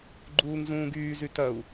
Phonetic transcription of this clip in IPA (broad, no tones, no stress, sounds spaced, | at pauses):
ɡ͡ǃ uː ŋ z ũː ɡ yː z y t ɐ u̯